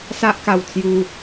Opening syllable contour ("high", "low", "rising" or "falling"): high